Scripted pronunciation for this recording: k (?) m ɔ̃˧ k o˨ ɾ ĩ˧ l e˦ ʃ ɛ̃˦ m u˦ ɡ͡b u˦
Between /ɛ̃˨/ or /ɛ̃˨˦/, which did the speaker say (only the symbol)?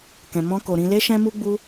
ɛ̃˨